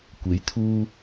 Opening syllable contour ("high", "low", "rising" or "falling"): rising